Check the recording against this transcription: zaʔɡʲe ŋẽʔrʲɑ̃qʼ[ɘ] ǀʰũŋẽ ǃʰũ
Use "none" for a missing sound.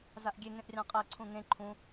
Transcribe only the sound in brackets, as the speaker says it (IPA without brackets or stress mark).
ɛ